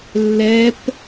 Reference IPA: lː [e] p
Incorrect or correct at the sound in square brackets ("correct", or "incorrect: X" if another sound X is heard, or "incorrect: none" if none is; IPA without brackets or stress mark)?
incorrect: ɛ